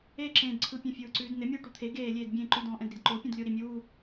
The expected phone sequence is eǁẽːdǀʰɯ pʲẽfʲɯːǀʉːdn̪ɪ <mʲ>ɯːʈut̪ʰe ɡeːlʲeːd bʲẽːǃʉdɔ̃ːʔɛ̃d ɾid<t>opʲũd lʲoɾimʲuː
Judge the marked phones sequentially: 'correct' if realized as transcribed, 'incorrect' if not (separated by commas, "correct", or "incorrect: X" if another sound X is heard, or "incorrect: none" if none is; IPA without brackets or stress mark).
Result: correct, incorrect: ǃ